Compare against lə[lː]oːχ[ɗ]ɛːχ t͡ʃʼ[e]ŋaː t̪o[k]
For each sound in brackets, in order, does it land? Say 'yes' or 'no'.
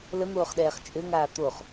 no, yes, no, no

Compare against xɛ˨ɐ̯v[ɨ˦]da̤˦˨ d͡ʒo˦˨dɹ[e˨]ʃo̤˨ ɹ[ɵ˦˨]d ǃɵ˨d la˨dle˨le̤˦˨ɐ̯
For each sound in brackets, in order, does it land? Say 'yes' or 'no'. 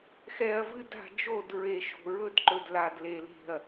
yes, yes, no

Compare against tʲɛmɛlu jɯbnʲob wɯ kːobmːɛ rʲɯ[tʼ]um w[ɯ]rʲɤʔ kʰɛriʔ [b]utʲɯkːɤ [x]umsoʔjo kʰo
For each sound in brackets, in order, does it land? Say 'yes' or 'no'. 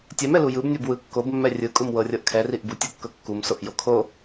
no, no, yes, no

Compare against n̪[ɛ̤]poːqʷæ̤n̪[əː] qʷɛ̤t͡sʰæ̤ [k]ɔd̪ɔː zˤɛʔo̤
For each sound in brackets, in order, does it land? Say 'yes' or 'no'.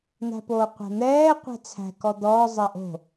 no, no, yes

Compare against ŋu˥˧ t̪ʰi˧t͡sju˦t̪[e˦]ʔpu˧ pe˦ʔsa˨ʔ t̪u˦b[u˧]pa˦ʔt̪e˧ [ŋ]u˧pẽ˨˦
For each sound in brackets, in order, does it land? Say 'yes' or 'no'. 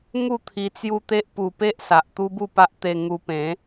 yes, no, yes

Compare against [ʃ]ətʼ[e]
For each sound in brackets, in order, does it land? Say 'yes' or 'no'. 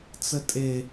no, yes

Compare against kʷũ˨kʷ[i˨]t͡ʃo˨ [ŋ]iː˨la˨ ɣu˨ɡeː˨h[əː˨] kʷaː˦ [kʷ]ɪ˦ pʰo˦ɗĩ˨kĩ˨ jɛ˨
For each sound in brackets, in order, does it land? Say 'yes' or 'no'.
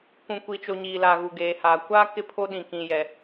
yes, no, no, no

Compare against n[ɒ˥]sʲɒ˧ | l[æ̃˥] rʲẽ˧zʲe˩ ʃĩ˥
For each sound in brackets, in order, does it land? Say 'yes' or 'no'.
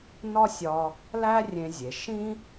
yes, no

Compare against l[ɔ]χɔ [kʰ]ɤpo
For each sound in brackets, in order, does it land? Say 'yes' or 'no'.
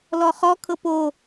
yes, yes

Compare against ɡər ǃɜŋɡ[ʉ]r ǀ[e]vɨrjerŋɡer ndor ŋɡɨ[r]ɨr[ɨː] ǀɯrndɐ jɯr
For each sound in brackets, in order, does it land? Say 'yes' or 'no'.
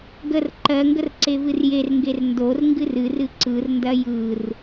no, yes, yes, no

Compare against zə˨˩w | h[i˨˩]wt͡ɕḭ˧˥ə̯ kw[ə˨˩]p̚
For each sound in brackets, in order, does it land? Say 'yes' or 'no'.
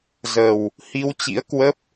no, no

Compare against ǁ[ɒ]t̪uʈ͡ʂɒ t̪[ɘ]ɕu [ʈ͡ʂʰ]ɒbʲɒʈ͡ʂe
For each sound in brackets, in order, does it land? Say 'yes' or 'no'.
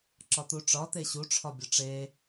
yes, no, yes

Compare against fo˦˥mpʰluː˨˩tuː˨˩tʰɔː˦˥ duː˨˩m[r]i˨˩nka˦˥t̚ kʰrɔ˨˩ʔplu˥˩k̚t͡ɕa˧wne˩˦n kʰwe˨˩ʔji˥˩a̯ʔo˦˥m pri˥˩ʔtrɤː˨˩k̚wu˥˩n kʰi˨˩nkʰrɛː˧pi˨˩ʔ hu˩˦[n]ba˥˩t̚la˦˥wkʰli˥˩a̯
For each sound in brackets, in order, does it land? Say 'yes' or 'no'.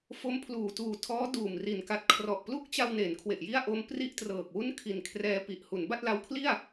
yes, yes

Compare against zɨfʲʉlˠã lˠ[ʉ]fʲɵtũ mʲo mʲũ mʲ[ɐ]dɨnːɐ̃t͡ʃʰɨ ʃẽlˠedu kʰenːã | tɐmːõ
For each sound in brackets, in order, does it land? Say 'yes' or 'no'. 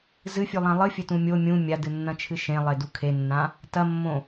no, no

